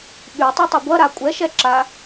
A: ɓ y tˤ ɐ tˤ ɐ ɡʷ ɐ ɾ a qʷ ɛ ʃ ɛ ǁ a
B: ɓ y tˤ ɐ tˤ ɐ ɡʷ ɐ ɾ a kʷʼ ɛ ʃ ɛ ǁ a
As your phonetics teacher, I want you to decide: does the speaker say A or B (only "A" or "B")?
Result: B